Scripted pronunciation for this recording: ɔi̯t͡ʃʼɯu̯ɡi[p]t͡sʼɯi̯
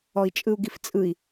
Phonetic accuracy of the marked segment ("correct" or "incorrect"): incorrect